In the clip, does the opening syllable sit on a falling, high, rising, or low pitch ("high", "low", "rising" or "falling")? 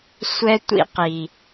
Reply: high